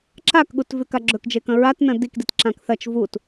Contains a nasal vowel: yes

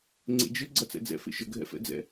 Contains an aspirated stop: no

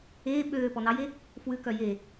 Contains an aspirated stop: no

